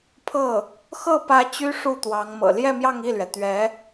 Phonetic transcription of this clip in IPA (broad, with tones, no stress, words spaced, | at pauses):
pʰɤ˥˩ | xɤ˥˩pä˧˥ t͡ɕy˥ ʂu˥˩t̪wɑ˧˥ŋ mɤ̰˨˩ ljɛ˥˧mjɑ˥˧ŋ i˥˩lɥɛ˩t̪ɥɛ˧˥